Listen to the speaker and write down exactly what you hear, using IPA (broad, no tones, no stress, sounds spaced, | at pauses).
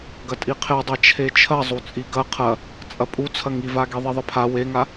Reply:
ɡ ɐ tʼ i qʰ e dˤ a t͡ʃʰ e t͡ʃʰ ɐ zˤ u t͡sʼ i ɡ ɐ qʰ ɐ | t͡sʼ ɐ pʼ u t͡sʰ ɐ ŋ i v a ɡ i ðˤ i ðˤ ɘ pʰ a w e ŋ a